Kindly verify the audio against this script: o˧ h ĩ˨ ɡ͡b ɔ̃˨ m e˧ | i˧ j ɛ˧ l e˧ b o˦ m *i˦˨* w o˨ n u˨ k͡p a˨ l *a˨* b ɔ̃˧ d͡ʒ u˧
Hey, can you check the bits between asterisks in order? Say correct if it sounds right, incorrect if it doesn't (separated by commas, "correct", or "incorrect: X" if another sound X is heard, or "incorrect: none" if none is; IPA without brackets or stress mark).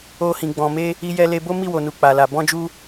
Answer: correct, correct